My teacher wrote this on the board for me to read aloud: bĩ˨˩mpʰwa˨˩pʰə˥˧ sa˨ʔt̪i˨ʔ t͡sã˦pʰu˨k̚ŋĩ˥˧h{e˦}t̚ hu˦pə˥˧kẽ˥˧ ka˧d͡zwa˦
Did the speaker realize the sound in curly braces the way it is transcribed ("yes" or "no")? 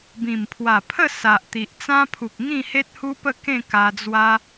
yes